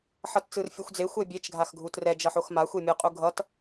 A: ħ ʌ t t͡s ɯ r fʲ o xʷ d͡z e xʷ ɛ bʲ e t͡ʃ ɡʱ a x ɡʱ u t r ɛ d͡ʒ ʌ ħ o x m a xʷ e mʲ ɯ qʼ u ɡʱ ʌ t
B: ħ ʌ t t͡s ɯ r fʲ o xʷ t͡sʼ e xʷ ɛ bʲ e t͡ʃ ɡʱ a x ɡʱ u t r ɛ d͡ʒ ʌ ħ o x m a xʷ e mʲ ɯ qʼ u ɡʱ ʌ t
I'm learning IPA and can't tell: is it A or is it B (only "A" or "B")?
A